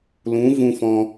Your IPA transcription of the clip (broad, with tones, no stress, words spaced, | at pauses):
lũ˨˦vũ˧ fɔ̃˧